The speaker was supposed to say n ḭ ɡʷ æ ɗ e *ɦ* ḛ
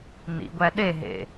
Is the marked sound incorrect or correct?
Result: correct